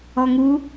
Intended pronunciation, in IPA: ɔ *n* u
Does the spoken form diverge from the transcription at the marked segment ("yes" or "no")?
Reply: yes